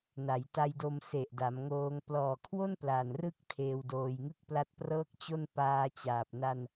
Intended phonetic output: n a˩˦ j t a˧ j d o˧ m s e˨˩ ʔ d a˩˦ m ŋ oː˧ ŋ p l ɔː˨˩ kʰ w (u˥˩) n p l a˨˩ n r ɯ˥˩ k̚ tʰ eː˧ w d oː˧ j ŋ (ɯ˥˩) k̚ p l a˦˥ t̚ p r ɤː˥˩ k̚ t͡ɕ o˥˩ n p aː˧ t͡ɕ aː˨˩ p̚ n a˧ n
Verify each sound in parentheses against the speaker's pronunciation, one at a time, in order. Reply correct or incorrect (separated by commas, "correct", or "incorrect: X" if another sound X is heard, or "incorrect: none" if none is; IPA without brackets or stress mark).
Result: incorrect: o˥˩, correct